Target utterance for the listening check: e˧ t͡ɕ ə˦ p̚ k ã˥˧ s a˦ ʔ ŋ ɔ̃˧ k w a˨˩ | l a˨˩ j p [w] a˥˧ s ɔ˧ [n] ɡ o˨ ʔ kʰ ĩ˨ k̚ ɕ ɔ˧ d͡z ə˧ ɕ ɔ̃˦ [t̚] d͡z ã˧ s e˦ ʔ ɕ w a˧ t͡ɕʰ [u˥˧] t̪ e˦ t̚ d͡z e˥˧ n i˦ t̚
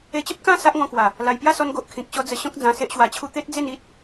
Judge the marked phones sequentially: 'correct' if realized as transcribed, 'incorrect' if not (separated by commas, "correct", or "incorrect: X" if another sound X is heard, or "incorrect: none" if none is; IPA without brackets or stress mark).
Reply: incorrect: j, correct, incorrect: k̚, correct